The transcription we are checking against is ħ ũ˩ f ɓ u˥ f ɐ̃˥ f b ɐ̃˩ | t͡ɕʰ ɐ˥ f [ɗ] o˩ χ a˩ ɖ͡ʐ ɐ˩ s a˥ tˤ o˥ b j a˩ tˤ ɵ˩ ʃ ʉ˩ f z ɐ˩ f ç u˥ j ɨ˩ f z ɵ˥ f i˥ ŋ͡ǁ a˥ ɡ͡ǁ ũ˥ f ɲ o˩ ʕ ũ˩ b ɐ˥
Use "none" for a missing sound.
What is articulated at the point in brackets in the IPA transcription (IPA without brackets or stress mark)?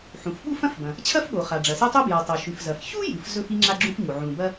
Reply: ɠ